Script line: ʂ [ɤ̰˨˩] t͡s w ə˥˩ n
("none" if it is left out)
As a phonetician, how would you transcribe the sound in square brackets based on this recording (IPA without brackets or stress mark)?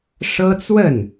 ɤ˥